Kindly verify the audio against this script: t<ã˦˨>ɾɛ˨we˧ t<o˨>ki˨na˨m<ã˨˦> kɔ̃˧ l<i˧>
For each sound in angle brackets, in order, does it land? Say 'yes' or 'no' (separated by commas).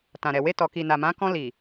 no, no, yes, no